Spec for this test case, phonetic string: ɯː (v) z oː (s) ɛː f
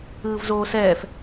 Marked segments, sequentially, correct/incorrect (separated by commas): correct, correct